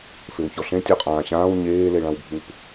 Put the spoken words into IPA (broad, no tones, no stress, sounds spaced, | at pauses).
f e w ç ɔ ɬ ẽ tʲ ɔ qʼ ãː ɕ ãː w ɲ eː l e ɭ ã w bʱ u p